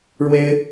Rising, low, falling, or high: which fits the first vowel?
high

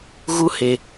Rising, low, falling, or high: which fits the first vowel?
high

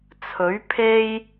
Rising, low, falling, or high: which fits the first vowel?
rising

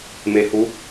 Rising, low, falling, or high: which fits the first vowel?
rising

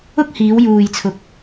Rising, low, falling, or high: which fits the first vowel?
high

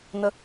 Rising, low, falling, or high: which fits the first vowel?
rising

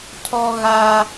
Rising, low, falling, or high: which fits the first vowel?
high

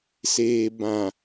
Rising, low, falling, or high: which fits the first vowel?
low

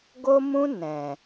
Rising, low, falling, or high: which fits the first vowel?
high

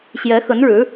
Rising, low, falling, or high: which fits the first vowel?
rising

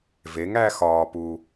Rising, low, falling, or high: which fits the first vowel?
rising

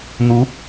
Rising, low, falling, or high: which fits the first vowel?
rising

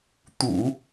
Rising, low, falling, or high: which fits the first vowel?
low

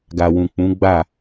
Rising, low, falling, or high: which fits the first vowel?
low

